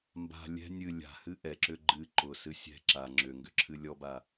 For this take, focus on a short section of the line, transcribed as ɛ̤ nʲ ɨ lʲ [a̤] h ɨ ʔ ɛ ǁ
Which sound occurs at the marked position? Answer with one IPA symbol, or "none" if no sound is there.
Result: a̤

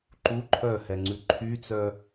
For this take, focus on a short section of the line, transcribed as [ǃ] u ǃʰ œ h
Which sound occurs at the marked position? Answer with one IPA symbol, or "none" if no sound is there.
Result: ǃ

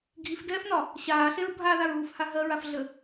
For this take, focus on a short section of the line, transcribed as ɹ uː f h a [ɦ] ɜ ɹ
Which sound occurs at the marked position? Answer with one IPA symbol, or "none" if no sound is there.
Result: ɦ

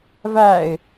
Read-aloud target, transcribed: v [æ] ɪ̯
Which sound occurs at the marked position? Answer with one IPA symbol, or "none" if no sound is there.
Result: æ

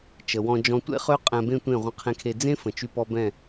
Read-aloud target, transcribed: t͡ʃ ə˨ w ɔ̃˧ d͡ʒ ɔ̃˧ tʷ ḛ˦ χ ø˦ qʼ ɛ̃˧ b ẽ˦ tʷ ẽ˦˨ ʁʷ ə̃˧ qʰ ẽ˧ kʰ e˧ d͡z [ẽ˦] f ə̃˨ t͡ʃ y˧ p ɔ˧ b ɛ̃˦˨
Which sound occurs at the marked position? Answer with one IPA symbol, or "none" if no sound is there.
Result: ẽ˦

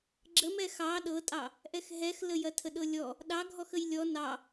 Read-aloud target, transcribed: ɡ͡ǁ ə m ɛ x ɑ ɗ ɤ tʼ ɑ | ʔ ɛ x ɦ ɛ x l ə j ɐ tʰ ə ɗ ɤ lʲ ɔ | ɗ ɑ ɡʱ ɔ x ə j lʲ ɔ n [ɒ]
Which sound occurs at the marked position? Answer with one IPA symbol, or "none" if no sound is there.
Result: ɑ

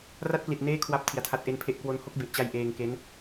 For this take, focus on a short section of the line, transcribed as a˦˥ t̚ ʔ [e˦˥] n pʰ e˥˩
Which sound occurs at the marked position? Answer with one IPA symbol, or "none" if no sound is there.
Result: e˦˥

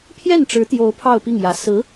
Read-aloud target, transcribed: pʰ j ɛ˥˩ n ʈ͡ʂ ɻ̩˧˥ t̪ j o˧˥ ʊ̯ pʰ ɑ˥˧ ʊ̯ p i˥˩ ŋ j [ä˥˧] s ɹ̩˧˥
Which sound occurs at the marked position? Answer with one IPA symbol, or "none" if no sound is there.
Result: ä˧˥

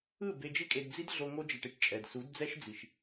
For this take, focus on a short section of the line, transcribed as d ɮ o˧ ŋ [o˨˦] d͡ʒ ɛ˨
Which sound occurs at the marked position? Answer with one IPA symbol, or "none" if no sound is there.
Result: o˧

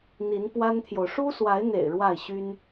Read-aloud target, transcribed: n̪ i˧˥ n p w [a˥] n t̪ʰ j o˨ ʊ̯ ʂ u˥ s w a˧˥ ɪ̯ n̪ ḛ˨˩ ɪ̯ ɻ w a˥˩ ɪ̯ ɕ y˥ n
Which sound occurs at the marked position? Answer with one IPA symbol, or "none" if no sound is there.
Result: a˥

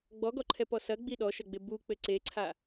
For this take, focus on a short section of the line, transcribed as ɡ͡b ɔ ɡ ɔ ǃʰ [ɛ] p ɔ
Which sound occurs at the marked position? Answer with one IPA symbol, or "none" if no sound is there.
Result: ɛ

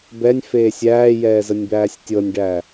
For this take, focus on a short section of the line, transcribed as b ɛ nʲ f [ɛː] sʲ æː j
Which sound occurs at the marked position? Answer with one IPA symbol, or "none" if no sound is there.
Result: eː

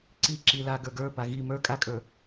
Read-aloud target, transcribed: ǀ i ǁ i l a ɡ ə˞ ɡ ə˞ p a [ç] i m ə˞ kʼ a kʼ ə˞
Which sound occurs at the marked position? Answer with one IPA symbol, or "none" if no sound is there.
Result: ɣ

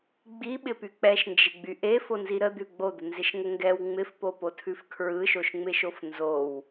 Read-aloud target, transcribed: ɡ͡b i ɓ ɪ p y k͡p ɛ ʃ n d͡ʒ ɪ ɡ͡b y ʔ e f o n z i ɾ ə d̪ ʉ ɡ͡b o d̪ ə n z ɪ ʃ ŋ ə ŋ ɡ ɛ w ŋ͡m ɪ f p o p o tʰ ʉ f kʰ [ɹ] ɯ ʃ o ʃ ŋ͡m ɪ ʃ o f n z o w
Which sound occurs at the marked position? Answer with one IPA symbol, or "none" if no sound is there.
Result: ɹ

